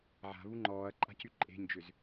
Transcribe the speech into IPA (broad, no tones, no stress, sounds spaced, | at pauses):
ʕ a̤ β u ŋ͡ǃ ɔː ɐ̯ ǃʼ a̤ c y ǃʼ e̤ ɲ d͡ʒ ʏ z